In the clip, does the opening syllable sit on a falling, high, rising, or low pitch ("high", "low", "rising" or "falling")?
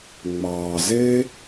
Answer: low